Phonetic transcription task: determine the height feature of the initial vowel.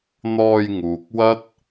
mid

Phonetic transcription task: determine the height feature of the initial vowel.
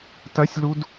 low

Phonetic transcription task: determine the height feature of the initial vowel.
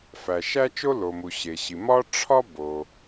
low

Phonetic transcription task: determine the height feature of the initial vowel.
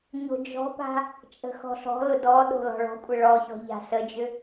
mid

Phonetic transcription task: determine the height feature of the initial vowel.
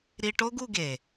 high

